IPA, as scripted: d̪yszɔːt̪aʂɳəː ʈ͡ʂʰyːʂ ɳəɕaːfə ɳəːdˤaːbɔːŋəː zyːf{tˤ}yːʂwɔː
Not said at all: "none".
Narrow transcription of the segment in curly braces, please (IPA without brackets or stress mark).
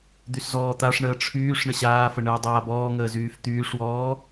t̪